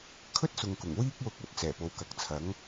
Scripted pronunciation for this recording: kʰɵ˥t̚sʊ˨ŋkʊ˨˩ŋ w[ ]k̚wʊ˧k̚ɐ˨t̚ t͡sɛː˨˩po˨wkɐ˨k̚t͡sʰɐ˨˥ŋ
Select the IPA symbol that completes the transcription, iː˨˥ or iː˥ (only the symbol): iː˥